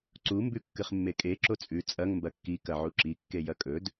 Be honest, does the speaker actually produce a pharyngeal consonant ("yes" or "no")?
yes